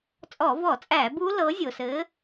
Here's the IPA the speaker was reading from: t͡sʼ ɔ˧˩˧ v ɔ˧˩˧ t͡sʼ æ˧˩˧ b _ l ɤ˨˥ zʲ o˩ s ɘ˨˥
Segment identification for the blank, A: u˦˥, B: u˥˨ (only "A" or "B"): A